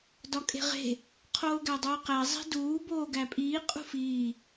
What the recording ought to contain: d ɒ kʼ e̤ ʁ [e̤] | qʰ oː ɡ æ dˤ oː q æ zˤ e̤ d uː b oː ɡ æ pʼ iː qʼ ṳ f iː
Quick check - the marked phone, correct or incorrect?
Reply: correct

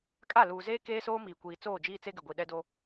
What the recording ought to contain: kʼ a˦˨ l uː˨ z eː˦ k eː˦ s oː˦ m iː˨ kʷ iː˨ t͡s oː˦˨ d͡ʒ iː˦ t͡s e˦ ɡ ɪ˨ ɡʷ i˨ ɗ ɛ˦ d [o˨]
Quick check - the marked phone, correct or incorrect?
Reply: incorrect: o˦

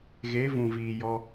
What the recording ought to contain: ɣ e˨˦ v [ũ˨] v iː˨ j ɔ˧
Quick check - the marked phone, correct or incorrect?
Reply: correct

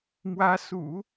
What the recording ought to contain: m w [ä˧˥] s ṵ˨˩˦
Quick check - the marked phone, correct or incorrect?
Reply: correct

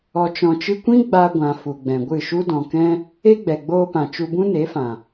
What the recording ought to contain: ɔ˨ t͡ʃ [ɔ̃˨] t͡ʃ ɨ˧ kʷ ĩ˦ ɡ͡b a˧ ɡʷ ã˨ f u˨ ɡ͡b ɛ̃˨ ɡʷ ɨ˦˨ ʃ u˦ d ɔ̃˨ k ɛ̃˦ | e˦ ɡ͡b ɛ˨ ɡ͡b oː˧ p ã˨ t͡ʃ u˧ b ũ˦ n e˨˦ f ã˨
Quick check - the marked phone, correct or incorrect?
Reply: correct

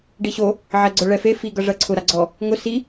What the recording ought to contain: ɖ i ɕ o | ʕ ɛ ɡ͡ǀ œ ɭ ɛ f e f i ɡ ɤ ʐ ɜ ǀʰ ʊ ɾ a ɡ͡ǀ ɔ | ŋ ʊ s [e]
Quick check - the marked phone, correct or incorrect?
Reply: incorrect: i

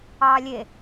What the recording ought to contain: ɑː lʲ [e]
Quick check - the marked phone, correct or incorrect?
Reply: correct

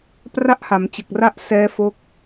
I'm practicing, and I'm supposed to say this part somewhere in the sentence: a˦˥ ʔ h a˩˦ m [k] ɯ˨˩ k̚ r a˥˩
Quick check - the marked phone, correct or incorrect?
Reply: incorrect: t͡ɕ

